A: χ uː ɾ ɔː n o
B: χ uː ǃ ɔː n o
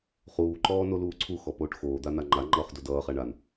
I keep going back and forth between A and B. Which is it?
B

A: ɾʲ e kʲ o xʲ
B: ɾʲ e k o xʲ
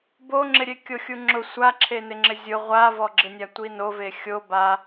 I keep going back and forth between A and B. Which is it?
A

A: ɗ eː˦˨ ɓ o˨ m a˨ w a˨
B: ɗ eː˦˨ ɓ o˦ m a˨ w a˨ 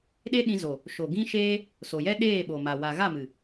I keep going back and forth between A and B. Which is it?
A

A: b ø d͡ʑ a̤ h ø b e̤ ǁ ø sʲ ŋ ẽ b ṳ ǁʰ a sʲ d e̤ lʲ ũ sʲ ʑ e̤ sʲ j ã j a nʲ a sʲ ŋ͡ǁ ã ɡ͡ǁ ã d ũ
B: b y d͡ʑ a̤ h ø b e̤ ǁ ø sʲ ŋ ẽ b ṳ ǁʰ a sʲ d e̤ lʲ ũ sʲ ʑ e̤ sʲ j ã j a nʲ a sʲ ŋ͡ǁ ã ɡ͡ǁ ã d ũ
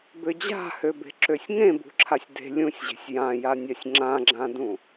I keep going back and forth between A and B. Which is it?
A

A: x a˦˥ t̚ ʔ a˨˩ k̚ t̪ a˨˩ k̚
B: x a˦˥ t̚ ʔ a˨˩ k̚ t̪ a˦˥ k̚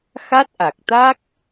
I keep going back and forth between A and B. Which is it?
B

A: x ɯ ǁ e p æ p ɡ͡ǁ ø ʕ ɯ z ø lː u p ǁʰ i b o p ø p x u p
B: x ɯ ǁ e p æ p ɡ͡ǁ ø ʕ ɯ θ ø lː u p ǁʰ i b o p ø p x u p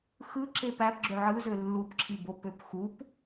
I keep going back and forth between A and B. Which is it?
A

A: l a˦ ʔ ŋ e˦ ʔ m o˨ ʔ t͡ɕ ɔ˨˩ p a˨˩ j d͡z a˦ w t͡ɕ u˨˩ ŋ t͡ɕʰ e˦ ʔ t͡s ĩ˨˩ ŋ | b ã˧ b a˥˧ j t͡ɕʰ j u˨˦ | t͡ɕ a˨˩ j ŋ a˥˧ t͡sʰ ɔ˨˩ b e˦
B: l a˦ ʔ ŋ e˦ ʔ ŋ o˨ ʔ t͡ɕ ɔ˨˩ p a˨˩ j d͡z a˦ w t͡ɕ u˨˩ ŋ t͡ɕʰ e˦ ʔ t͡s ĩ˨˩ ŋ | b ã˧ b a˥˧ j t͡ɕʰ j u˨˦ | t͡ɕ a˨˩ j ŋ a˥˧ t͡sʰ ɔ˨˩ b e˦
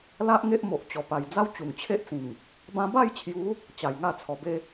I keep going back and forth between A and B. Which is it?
A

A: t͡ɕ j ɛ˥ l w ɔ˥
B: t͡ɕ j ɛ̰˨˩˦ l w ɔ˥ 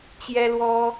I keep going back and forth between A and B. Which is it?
A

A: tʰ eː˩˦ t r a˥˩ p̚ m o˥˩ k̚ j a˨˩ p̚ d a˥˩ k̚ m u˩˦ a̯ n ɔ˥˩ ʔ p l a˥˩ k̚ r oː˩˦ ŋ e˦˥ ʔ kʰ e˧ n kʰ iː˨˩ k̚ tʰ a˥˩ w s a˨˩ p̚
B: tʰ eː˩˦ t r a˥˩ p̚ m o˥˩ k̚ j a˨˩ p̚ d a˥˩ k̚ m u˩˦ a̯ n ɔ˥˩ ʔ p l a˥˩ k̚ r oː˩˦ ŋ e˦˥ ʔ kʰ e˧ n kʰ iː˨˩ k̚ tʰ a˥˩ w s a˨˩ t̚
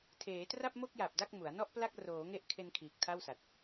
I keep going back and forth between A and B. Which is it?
B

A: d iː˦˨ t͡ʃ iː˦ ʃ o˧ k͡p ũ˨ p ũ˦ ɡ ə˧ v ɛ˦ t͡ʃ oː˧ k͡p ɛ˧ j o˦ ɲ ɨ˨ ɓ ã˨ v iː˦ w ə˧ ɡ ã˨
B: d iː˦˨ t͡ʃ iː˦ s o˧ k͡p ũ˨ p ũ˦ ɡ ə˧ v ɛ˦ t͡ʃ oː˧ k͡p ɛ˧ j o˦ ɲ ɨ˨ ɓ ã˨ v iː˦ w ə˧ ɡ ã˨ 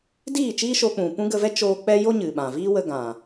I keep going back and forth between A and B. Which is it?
A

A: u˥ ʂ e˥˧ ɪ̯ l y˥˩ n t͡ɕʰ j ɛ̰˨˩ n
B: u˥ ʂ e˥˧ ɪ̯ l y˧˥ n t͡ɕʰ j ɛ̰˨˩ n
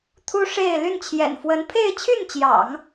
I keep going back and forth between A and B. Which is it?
A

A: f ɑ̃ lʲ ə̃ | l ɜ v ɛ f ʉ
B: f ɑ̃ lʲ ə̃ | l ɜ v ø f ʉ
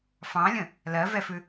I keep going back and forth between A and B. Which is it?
A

